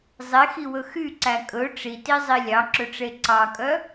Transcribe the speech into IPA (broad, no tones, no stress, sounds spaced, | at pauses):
zˤ e x i w ɵ x y ǀ æ kʼ ɵ ʈ͡ʂ i t i zˤ i lʲ ɑ ǁ ɵ ʈ͡ʂ e ǀ ɑ kʼ œ